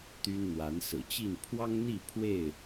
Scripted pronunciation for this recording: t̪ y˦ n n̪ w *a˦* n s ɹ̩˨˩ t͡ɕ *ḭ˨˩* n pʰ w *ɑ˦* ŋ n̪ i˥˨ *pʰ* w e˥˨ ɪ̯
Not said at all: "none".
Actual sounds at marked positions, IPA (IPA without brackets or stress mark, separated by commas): a˨˦, i˥˨, ɑ˦, pʰ